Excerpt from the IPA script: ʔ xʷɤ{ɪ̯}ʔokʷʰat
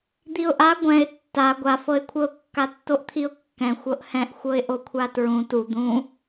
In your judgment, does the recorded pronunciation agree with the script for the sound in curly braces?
yes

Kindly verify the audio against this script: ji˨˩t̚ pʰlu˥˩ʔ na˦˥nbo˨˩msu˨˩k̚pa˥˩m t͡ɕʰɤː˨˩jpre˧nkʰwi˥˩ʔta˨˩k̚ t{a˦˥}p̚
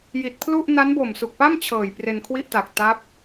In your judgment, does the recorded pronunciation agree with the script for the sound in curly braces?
yes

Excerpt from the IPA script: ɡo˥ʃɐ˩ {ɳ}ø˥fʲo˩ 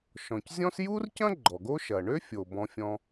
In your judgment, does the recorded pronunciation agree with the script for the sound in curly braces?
yes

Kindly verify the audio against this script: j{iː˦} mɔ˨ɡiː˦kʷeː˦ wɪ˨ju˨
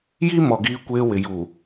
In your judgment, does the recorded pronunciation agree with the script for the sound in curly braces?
no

